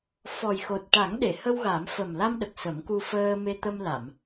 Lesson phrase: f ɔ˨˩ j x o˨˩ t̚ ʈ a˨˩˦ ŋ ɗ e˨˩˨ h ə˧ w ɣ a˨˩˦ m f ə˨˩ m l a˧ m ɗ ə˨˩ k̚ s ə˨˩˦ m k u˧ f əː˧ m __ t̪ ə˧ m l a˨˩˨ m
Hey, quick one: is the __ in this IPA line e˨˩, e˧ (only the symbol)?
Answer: e˧